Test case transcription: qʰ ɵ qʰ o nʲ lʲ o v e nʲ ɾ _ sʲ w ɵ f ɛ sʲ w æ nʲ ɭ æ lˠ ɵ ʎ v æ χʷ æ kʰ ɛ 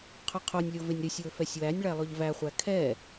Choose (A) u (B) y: B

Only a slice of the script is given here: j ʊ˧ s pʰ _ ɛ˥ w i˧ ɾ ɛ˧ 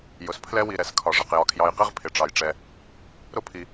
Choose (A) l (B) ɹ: A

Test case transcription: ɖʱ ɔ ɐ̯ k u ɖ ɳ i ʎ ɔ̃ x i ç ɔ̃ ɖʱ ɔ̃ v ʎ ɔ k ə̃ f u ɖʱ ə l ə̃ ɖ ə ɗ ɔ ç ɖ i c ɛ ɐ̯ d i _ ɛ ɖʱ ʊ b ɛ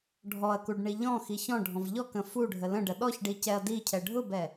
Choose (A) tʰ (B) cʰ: B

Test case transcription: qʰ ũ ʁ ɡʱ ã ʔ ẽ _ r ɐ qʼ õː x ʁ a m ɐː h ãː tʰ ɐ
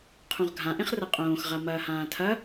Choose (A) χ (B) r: A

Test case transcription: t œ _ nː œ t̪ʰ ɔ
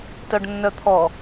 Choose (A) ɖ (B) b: A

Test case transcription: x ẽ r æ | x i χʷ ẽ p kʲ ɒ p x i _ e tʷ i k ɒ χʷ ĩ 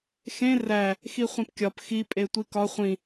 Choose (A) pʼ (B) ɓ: A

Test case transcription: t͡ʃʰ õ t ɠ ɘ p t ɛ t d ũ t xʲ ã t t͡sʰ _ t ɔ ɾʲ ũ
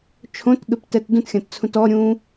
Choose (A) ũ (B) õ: A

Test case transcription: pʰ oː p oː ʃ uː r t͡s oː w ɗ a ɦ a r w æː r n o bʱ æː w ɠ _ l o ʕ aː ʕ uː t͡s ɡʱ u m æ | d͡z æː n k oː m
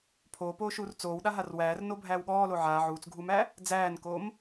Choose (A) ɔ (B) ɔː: B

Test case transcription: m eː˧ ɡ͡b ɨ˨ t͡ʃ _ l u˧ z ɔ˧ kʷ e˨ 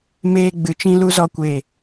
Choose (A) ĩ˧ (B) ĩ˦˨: A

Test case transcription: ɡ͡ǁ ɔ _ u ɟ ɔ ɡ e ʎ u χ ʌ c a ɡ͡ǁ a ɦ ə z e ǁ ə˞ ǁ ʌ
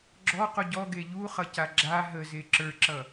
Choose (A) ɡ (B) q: B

